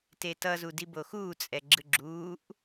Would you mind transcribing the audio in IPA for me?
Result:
t e t ʌ z u d i b o x uː t͡sʼ ɛ ɡ͡ǁ ɯ ɡ͡ǁ uː ʔ

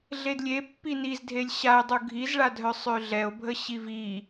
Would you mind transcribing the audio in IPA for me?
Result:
ɮ e d lʲ e pː i n i z dʱ e lʲ ɕ a e̯ dˤ u ɡʱ i z ɭ a dʱ œ sˤ ø ɮ ɛ o̯ bʱ ə ɕ i v i

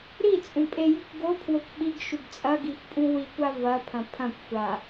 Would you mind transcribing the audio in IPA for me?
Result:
ɾ i t͡sʼ ũ pʼ e j ʉ kʷ ɡ o pʰ w o kʷ ɓ i ɡ ʃ ʉ ɡ t͡sʼ ɐ ɡ i x pʼ ũ w i kʷ a v ɐ pʰ ɐ̃ pʰ ɐ̃ kʷ xʷ a

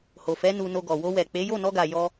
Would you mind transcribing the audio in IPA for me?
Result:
h o˨ f ɛ˨˦ n u˧ n o˧ ɡ ɔ˨ w o˧ w ɛ˨ k͡p e˨˦ j o˦˨ n ɔ˧ ɡ a˨ j ɔ˧

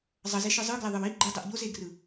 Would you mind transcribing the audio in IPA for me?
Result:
zˤ ʌ z e ʃ ɯ zˤ ɯ ɡ l ɛ ðˤ ɯ w i ɡ͡ǃ ɯ dˤ ɛ ʔ ʎ o z e ɡ r ɯ

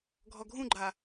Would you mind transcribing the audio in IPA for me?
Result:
ɡʱ ɔ ɡʱ ũ ɡ͡ǃ a

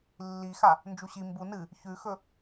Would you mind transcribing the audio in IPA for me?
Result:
lː i x a | n d͡ʒ u ɕ i m b u n ɨ | ç ʉ x ɵ

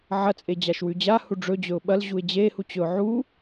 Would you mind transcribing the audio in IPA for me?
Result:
ʕ ɐ t͡sʼ e d͡ʑ a ʃ w ʉ d͡ʑ a h u ɖ͡ʐ ɵ d͡ʑ ɵ ʊ̯ ɓ ɐ l ʑ u ɪ̯ d͡ʑ e h u t͡ɕ ɵ ʊ̯ ʕ u

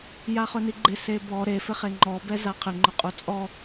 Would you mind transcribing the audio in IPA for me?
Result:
j a χ ʊ n i ɡ͡ǃ ɪ s e b ɔ ɾ e f ɪ χ e ŋ͡ǃ ɔ b ɛ z a qʰ ɪ ŋ͡ǃ ʊ qʼ u t͡sʼ ɔ

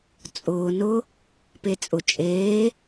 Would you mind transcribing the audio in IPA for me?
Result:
t͡sʼ ʊː n ʊ | p e t͡sʼ ʊ t͡ʃʼ eː

